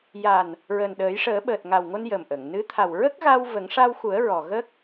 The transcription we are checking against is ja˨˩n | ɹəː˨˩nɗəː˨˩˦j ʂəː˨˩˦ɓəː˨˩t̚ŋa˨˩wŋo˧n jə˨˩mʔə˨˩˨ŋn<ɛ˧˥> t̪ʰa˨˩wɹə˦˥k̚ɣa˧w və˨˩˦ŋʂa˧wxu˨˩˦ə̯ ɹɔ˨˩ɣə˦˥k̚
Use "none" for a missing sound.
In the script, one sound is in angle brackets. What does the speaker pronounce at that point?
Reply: ɨ˧˥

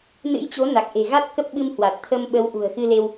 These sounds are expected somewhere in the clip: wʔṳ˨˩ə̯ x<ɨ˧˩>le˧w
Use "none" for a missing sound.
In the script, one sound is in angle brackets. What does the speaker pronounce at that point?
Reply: ɨ˧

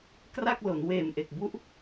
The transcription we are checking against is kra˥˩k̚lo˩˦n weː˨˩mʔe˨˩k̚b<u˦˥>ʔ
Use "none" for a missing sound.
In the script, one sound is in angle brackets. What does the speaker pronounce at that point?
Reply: u˦˥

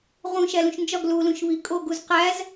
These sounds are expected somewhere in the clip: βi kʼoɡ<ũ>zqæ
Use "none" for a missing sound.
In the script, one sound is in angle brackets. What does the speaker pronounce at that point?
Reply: u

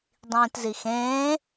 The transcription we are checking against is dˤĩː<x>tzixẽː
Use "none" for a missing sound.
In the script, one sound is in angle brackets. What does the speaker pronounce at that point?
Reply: none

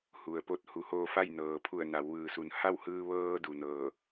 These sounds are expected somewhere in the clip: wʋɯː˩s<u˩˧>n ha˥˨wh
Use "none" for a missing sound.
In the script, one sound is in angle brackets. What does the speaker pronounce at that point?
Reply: u˩˧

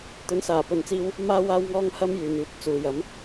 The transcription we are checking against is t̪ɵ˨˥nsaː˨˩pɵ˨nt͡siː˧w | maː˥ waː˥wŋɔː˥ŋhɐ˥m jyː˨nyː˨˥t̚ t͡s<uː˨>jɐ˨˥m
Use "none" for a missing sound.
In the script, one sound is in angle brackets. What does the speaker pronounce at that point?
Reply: uː˨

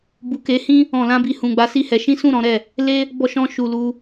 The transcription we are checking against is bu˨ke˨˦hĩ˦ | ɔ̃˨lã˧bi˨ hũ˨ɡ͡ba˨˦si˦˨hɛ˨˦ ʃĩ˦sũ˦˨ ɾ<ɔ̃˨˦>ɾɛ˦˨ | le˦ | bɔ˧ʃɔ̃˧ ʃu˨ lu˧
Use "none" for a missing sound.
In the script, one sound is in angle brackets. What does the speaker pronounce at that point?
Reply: ɔ̃˨˦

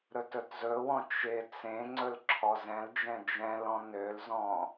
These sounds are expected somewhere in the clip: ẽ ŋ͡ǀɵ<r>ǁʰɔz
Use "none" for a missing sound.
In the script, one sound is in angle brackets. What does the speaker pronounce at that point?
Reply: l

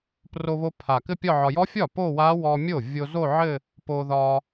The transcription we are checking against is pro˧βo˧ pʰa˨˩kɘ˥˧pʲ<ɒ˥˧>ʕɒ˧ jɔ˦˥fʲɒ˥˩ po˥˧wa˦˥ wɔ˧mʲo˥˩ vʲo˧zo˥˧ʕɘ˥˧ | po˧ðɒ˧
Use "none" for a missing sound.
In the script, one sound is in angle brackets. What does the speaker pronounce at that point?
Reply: ɒ˥˧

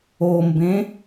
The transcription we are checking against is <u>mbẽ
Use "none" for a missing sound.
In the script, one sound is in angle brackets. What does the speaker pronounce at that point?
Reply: o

